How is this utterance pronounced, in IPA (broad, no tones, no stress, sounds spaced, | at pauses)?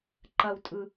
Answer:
ǃ ɐ w tʼ ɯ